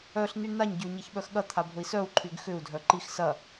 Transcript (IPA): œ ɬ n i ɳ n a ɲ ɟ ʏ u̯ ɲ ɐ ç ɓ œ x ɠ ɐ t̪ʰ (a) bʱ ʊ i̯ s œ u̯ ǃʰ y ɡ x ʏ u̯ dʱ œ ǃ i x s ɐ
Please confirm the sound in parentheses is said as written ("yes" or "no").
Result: yes